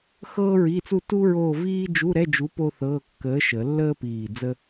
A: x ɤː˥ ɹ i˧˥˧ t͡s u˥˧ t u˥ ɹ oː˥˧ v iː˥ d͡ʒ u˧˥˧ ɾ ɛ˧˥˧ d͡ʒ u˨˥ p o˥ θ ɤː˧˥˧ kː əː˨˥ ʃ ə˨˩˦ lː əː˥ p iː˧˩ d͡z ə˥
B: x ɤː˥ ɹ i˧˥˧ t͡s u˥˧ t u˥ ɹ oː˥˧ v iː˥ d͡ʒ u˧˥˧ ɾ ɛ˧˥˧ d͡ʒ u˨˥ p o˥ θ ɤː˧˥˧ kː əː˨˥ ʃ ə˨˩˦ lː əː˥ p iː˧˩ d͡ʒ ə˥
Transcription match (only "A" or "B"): A